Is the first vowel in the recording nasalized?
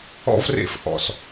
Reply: no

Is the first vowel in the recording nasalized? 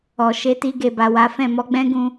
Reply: no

